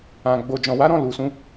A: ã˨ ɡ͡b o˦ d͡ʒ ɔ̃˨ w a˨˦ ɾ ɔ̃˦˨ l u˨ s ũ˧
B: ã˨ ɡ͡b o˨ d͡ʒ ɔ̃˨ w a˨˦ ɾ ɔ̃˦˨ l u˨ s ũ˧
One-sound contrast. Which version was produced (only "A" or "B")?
B